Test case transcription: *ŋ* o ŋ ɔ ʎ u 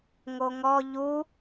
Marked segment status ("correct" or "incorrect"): correct